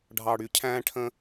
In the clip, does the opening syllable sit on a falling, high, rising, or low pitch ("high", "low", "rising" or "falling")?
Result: low